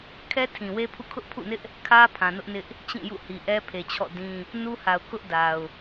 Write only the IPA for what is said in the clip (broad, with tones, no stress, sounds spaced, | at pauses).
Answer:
kʰ ɛ˦ tʰ ĩ˨ w e˦ pʰ ṵ˦˨ kʰ ʊ˦ ʔ pʰ ṵ˦˨ n ɪ˦ ʔ | kʰ ä˦ pʰ ã˨ n ʊ˦ ʔ n ɪ˦ ʔ | t͡ɕ ĩ˦˨ j ṵ˦˨ h i˨ ʔ ɛ˦ pʰ e˨ t͡ɕʰ ɔ̰˦˨ d ĩ˦ | n u˦ h a˨ ʊ̯ k ʊ˦ ʔ d a˨ ʊ̯